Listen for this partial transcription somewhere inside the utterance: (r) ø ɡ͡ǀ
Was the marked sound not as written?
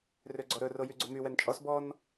no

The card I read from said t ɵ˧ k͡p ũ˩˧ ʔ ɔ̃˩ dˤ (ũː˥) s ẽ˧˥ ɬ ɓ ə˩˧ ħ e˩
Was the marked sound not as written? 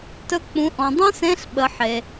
yes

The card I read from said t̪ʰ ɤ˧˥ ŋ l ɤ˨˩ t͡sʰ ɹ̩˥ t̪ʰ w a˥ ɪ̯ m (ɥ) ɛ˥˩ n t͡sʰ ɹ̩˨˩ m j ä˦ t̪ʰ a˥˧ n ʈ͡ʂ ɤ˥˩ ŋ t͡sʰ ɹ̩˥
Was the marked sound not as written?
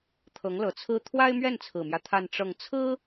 no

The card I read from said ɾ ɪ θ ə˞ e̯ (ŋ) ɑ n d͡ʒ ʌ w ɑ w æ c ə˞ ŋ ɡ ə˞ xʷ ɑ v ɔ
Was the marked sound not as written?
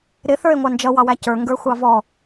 yes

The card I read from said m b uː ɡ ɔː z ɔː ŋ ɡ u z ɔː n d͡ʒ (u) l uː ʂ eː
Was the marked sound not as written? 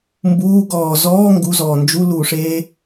no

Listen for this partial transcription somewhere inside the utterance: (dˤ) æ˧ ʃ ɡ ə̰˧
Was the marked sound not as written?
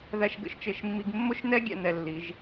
yes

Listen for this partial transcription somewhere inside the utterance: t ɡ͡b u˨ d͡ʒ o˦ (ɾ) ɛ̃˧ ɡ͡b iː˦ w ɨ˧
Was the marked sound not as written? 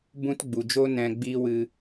yes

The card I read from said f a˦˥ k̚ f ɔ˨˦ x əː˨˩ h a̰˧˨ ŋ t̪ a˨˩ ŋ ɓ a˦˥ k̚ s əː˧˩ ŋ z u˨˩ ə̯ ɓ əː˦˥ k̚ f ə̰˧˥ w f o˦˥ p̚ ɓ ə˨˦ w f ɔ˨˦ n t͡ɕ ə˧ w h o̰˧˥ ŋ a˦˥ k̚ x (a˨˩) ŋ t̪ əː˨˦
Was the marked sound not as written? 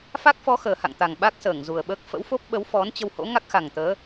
no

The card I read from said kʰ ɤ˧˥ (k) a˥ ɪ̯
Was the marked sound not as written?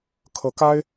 no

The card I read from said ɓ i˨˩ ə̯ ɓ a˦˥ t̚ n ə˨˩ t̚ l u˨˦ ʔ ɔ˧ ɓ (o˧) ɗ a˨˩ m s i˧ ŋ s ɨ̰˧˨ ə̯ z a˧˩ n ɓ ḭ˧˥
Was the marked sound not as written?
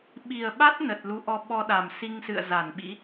yes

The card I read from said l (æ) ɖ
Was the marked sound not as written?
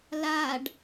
yes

